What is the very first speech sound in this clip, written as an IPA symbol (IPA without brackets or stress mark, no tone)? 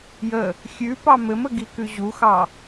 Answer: j